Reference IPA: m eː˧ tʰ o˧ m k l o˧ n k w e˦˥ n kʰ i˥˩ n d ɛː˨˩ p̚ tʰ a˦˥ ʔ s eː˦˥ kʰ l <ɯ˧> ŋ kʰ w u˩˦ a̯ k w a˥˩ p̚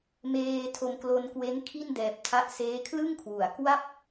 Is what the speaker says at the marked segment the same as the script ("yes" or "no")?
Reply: no